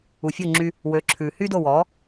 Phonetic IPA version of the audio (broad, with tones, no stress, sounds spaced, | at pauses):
u˩ fʲ o˥˩ ŋ͡ǁ y˧ | w ø˩˥ ǁʰ ʉ˩ h y˥ d o˥˩ w ɔ˩˥